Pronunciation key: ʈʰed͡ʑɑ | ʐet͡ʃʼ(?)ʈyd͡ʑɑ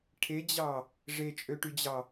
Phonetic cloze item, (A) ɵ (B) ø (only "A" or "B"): B